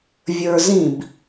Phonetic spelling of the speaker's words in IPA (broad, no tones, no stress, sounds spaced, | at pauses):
vʲ ə˞ z ĩ b